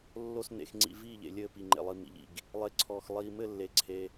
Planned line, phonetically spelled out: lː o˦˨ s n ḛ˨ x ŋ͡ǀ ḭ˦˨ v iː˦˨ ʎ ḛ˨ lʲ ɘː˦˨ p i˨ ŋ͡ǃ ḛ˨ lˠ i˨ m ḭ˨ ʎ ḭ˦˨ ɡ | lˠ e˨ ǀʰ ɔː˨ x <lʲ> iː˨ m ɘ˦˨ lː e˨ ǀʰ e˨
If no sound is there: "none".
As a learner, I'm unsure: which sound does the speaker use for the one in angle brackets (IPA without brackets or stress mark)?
lˠ